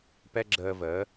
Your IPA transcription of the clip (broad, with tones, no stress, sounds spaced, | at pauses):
p ɛ˥ ɡ͡ǁ əː˧ v əː˩˥